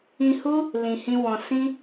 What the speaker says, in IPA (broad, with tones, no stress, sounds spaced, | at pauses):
ĩ˧ h u˦ | l ĩ˧ h ĩ˦ w ɔ̃˧ s ĩ˦